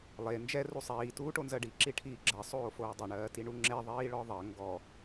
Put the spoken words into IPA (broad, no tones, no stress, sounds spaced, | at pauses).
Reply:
lˠ e n d͡ʒ ɛ r u sˤ iː t uː ʈ o n z ɜ ɖ i ǁ i ʈʰ iː ɡ͡ǁ ɜ sˤ oː f oː dˤ e ɳ ɜː t i ɳ u ŋ͡ǁ e ðˤ iː ɭ ɔ ðˤ ɜ ŋ ɡ ɔ